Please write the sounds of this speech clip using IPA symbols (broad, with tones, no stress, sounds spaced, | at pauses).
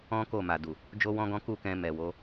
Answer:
ɔ̃˦ k o˦˨ m a˨ d u˨ | d͡ʒ o˦ w ɔ̃˦ ɡ ɔ̃˦ k u˦˨ k ɛ̃˧ m ɛ˨ w o˨˦